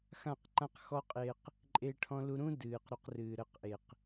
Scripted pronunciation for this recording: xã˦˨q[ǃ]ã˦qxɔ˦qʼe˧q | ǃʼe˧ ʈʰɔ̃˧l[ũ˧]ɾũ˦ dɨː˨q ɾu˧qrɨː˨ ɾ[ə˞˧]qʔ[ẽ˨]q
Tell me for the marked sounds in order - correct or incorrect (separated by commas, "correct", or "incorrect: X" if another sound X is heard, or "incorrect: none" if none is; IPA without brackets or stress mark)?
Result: correct, incorrect: u˧, incorrect: ə˧, incorrect: e˨